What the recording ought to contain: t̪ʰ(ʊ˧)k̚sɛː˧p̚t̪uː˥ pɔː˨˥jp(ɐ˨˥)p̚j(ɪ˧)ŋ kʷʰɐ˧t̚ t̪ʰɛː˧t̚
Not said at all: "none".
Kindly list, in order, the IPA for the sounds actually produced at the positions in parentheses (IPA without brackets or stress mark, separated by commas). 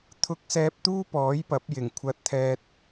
ʊ˧, ɐ˨˥, ɪ˨˩